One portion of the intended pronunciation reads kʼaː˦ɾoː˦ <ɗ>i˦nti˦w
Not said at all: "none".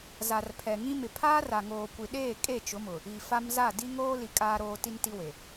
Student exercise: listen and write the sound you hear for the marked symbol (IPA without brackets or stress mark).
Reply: t